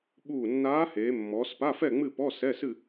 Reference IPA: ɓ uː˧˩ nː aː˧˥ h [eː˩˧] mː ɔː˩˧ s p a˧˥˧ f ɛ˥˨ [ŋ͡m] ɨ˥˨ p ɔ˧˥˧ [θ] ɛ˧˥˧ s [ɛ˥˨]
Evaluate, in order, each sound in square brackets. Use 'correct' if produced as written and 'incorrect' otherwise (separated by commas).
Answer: correct, correct, incorrect, incorrect